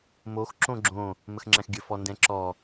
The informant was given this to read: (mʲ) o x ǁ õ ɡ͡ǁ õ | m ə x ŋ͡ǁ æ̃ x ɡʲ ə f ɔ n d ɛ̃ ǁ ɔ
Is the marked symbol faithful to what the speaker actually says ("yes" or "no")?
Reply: no